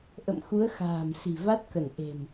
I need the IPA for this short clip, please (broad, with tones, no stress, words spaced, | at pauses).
ʔə̰˧˨mxu˨˦ə̯ xa̤ː˨˩m si̤˨˩va˦˥t̚kə˧˩n ʔe̤˨˩m